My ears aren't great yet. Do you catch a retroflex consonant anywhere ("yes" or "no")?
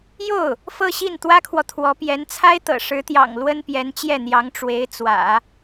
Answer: yes